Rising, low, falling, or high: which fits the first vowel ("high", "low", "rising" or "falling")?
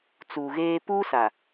low